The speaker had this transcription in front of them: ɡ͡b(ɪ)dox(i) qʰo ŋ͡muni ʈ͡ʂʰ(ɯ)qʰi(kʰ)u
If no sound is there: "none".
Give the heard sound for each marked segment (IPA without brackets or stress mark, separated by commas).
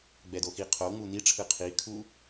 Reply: ɛ, i, ɯ, kʰ